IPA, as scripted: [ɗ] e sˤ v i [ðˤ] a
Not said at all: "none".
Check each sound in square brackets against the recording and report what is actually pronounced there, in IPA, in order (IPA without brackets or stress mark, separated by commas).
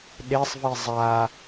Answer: ɗ, zˤ